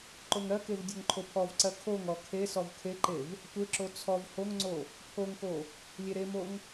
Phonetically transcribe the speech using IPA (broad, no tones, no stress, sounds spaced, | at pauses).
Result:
ǃ o ŋ ɾ ɜ k e v dʲ o ŋ ǃʰ o pʰ ɔ v ǀ ɜ kʰ o ŋ ɔ kʰ e s ɔ v kʰ e ǃ e v | tʷ e ǁ o t͡sʰ ɔ v h o ŋ ŋ͡ǀ o | pʰ o ŋ k o | lʲ e ɾ e m o ŋ